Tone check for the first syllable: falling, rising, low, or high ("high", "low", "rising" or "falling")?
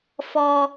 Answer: high